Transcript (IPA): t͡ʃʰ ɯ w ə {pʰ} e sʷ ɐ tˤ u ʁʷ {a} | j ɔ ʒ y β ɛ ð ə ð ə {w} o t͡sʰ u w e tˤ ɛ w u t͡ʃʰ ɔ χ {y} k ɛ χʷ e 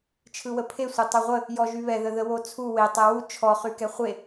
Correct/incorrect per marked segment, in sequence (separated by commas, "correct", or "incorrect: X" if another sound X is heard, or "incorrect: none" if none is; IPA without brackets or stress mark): correct, incorrect: ə, correct, correct